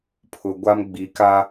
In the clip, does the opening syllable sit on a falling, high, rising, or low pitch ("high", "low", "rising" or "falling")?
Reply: low